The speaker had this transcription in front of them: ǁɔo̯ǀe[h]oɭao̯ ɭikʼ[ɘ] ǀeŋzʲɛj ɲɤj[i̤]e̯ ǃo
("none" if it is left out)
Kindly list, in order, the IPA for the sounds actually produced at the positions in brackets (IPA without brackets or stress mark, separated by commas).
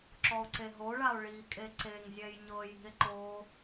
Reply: ɦ, e, i̤